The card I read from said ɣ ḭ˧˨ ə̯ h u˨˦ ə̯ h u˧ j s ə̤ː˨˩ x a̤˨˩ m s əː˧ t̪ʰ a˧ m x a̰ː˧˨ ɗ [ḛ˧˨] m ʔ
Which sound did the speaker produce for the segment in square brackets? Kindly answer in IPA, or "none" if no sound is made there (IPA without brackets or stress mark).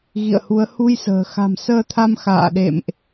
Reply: ḛ˧˨